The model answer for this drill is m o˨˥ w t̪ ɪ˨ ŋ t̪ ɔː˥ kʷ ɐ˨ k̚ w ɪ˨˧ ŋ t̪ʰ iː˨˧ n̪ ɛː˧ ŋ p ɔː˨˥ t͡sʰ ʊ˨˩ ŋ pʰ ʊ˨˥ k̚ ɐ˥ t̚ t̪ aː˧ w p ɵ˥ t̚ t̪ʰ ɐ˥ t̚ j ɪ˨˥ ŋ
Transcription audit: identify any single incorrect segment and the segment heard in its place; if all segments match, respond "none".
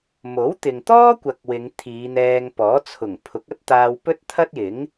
none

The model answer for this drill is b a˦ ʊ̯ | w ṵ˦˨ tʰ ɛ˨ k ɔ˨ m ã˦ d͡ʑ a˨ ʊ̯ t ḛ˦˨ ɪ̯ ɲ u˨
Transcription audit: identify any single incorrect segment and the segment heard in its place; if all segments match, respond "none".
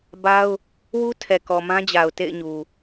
ṵ˦˨ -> u˦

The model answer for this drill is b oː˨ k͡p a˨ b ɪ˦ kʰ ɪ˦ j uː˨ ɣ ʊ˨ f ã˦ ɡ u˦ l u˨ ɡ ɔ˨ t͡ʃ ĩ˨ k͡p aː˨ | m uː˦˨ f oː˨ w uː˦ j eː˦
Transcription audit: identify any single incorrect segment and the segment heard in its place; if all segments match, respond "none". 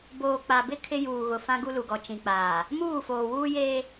none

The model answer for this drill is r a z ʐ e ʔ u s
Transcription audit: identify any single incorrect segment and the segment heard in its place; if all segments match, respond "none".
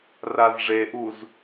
s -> z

